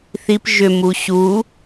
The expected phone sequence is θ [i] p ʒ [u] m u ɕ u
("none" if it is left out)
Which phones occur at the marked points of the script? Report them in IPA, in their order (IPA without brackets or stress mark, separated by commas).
i, ʏ